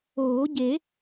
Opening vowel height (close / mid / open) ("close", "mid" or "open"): mid